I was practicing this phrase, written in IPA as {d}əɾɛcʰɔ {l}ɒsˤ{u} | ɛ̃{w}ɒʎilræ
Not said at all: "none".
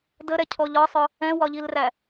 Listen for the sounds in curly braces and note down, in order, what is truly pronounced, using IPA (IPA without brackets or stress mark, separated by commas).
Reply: d, ʎ, ʊ, w